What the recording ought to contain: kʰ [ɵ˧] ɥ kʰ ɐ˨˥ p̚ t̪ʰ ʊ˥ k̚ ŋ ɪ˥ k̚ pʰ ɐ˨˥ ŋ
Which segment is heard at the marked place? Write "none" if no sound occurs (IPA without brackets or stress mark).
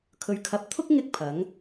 ɵ˨